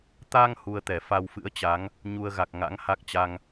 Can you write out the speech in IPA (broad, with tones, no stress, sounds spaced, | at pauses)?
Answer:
t̪ a˧ ŋ h u˧ ə̯ t̪ ɛ˧˩ f a˧ w f ɨ̰˧˥ ə̯ t͡ɕ a˨˦ ŋ | ɲ u˧ ə̯ ɣ a˨˩ k̚ ŋ a̰˧˥ ŋ h a˦˥ k̚ t͡ɕ a˧ ŋ